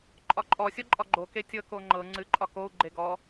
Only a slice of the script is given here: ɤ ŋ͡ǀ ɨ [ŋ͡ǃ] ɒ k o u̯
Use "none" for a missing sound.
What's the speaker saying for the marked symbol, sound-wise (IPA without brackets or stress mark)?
ǃʼ